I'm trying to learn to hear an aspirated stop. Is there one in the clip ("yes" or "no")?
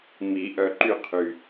yes